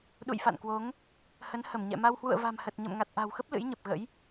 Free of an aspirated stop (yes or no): yes